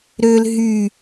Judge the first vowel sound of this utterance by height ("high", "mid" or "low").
mid